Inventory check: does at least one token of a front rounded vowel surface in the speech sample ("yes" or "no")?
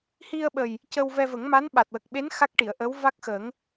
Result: no